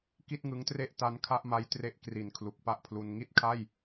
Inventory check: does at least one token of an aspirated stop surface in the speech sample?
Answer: yes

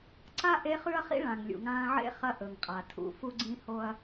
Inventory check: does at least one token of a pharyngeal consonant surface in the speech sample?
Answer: yes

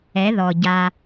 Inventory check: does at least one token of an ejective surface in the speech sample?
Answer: no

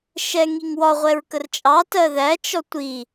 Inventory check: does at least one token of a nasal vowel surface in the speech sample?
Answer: no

